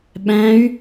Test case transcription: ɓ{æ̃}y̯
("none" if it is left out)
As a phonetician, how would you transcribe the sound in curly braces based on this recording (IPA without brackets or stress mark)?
æ̃